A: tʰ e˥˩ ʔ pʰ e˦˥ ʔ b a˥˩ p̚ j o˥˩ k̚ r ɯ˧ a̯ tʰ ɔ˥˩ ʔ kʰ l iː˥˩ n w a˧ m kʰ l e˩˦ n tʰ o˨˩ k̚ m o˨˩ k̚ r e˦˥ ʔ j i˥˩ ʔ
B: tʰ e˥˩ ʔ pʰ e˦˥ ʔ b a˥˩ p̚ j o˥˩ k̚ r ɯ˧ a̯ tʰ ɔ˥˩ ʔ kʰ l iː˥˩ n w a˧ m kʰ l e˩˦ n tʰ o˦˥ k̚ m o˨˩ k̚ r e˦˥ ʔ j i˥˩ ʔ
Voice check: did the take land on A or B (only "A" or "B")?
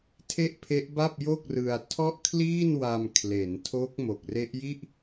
B